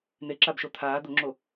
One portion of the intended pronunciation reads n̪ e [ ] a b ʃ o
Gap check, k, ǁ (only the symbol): ǁ